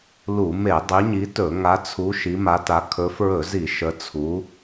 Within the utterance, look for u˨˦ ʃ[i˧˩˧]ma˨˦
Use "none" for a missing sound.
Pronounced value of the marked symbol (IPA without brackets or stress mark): i˨˦